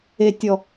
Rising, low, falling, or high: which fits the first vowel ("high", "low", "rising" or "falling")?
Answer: low